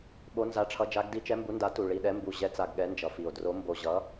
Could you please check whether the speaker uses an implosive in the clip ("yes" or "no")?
yes